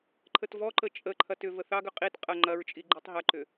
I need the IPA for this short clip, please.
ǃʰ ə t v ɔ ǃ ə t͡ʃʼ ə ǃʰ ɐ t ʏ v ə θ ɑ ɡ ʏ qʼ i t qʼ ɐ ŋ͡ǃ ɐ ɹ t͡ʃʼ i ɡ͡ǃ i tˤ ɦ ɐ ǃ ʏ

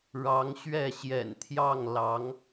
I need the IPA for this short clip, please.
ɻ ɑ˧˥ ŋ ɕ ɥ ɛ˥˩ ɕ j ɛ̰˨˩ n t̪ʰ j ɑ˥˩ ŋ l ɑ˧˥ ŋ

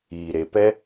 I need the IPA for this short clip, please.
iː˨ ɾ e˧ p ɛ˦

